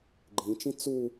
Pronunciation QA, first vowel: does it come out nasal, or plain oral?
nasal